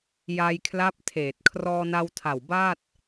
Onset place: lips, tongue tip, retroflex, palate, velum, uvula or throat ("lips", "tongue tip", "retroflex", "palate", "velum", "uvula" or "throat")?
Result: palate